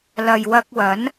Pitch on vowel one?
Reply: low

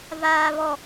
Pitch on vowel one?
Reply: high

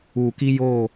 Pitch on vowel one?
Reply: low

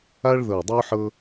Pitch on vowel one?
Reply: high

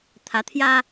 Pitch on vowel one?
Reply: rising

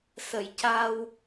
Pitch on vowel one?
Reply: low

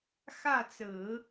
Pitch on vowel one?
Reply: falling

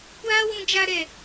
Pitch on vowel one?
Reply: high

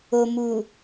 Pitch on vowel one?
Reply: low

